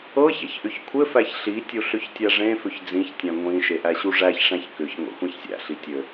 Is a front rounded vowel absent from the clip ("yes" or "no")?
no